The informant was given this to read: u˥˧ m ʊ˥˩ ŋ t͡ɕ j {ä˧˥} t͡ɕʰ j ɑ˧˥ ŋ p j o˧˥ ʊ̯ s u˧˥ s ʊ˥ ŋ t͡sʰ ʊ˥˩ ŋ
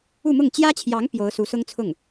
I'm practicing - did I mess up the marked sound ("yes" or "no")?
yes